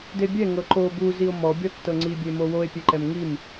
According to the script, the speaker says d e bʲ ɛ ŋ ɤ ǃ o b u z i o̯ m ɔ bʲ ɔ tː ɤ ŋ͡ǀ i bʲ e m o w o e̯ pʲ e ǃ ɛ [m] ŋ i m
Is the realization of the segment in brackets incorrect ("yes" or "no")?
no